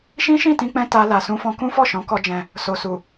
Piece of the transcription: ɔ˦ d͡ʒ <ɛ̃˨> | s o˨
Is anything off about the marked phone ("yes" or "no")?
yes